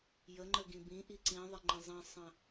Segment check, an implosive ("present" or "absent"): absent